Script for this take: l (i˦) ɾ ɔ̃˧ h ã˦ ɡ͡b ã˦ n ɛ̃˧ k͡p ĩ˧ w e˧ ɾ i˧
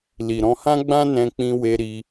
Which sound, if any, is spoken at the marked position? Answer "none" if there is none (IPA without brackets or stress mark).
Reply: i˨